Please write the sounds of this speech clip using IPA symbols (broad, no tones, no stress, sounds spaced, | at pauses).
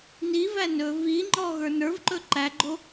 n i v æ n ɵ v i ŋ͡ǃ ɔ ɣ ə˞ n ə˞ v ǃ ɵ ǃ æ ɡ͡ǃ o